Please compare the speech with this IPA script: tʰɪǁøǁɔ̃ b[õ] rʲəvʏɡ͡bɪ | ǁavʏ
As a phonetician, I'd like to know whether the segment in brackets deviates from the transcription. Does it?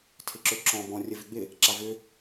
yes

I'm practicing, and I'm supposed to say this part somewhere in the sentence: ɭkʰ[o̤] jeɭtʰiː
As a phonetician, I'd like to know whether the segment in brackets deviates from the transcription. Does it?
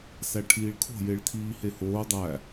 no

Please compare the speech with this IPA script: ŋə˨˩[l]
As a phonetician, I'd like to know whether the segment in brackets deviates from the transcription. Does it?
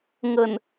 yes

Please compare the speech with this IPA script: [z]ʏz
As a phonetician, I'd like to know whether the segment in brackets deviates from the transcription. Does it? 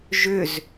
yes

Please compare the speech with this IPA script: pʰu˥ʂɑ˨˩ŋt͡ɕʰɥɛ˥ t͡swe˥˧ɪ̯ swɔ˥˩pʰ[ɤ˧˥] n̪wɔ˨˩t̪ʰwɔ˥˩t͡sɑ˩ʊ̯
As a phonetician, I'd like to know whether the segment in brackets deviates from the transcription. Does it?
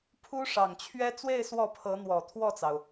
no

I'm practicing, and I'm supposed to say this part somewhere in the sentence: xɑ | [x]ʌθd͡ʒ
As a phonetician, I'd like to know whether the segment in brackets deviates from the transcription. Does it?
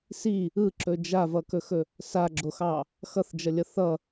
no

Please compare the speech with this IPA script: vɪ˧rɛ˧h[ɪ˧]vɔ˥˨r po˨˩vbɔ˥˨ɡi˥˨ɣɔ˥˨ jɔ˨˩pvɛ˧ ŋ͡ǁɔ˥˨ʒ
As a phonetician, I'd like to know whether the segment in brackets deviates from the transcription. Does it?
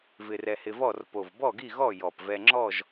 no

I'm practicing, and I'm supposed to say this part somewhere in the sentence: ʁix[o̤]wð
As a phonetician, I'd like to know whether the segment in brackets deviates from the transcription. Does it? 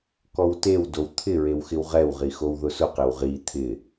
yes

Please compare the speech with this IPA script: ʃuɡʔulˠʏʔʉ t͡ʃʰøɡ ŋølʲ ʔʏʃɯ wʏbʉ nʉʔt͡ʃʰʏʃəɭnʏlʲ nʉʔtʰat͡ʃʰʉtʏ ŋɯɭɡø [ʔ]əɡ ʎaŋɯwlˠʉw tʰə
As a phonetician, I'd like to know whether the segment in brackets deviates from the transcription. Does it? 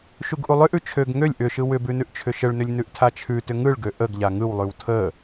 no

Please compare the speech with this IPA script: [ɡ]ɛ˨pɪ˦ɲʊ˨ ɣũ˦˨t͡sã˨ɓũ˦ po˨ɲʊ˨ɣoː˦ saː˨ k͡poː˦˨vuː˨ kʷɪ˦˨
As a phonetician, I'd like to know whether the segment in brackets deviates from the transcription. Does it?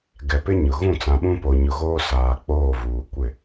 no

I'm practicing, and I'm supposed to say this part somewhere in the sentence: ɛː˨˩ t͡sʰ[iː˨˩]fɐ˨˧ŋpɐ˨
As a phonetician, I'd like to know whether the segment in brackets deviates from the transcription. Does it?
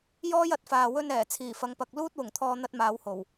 no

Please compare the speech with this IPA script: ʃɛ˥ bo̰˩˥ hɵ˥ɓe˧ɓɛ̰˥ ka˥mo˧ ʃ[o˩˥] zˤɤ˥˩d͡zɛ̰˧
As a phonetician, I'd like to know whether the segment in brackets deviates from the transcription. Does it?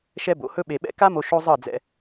yes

